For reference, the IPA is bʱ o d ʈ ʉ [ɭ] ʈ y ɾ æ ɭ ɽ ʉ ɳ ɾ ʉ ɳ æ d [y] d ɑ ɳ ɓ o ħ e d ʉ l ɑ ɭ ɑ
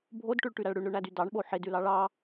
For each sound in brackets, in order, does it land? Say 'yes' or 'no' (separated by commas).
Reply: yes, yes